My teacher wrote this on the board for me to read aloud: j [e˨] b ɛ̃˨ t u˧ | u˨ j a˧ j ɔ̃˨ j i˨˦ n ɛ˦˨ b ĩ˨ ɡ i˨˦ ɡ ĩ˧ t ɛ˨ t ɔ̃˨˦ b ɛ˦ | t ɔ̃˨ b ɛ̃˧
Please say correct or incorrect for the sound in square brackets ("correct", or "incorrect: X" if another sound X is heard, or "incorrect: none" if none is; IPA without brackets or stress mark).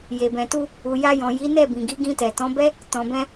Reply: correct